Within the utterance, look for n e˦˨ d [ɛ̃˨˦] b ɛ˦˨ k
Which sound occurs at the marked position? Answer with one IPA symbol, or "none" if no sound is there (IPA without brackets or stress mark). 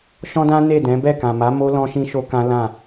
ɛ̃˨˦